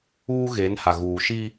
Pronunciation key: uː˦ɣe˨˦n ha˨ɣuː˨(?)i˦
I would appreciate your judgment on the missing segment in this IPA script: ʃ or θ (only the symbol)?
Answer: ʃ